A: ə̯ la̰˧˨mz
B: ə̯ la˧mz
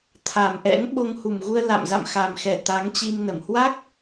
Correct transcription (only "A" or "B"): A